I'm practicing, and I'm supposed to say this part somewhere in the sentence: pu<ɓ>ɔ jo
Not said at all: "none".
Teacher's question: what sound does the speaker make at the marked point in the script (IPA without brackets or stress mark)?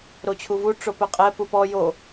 p